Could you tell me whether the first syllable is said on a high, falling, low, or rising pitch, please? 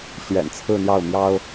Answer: low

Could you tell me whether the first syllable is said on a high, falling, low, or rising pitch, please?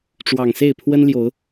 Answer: low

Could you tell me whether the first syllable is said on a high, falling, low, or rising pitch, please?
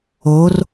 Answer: rising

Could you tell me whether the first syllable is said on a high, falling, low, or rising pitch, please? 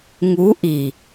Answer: rising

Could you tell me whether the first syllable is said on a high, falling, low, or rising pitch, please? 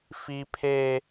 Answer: high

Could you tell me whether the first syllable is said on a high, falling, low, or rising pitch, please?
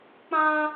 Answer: high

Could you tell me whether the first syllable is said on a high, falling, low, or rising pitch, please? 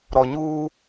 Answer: low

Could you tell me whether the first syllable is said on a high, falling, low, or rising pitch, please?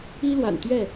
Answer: high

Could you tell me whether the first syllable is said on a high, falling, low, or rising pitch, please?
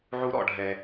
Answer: high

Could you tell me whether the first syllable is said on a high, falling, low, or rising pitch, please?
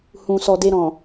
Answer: low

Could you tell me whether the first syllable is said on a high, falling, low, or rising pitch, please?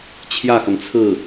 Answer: falling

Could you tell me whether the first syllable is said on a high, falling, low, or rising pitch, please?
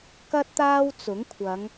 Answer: high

